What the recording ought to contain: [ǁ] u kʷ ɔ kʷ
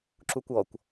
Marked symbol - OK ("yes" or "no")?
yes